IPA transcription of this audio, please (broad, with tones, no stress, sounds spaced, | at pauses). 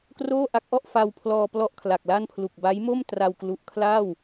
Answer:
k r oː˥˩ ʔ a˦˥ k̚ ʔ ɔ˥˩ ʔ f a˧ w pʰ l ɔː˧ p l ɔ˥˩ ʔ kʰ l a˨˩ k̚ l a˥˩ n pʰ l u˨˩ k̚ b a˦˥ j m o˥˩ m t r a˧ w k l u˨˩ ʔ kʰ l aː˥˩ w